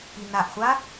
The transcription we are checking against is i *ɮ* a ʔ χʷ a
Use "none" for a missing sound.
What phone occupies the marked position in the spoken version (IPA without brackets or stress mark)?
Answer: n